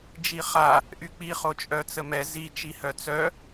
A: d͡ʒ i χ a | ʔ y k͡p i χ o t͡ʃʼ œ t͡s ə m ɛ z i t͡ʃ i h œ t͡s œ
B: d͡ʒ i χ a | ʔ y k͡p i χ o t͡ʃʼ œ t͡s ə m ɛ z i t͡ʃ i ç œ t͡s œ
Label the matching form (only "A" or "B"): A